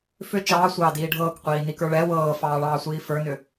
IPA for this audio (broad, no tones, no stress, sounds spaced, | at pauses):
f ʏ t͡ʃ ɑː sʷ ɑː d iː ɖʱ ɤː k qʷ iː n i k ə˞ ɭ ɛ w ɤː f ɑː ɭ ɑː sʷ iː f ə˞ n ʏ